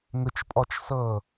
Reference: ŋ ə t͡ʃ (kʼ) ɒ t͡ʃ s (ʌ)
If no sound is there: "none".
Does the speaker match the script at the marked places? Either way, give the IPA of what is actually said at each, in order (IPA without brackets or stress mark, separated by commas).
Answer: pʼ, ʌ